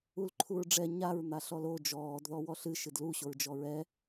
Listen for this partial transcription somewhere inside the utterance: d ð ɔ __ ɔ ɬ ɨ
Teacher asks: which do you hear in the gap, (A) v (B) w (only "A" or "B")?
B